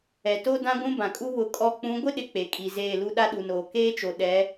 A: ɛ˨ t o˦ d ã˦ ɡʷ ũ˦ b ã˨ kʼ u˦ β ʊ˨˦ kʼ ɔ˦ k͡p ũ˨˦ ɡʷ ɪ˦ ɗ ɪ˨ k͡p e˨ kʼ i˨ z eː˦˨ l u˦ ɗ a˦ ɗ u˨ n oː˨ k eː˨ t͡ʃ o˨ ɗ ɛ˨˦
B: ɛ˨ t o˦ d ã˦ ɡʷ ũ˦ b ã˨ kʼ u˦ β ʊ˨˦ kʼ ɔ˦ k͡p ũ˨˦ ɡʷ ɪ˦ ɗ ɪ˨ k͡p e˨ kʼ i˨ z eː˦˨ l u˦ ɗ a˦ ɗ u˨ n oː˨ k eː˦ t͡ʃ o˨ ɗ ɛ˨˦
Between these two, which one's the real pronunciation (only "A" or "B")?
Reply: B